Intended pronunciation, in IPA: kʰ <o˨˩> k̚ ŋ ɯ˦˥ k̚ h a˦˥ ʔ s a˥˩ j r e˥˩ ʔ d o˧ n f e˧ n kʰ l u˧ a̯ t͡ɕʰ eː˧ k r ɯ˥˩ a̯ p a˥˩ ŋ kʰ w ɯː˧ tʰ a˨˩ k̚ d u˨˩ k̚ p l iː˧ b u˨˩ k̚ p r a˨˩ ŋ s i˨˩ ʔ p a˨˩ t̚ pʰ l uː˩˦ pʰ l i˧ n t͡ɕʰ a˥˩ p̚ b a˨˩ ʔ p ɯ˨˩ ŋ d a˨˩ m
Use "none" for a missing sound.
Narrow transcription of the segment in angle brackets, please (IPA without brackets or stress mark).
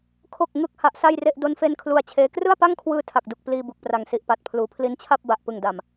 o˨˩